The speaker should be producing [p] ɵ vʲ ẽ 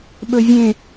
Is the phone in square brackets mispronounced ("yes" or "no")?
yes